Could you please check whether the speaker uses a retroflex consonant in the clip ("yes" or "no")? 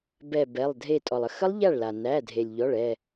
yes